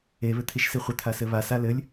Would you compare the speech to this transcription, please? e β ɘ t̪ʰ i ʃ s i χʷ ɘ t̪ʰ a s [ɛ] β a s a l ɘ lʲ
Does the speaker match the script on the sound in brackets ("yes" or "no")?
no